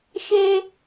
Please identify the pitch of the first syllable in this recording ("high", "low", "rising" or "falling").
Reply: high